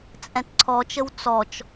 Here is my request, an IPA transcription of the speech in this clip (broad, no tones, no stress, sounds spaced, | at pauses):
t͡sʼ ɛ̃ t ǀʰ ɔ t͡ʃ ə w t͡s ɔ t͡ʃ